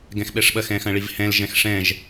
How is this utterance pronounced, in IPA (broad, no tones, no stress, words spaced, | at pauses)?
ɡɛ̃xɓɛʂɓɐx ɛ̃xɐ̃ɭivhɛ̃l ʒɛ̃xʂɛ̃ʒ